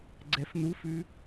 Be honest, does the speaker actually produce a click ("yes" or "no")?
yes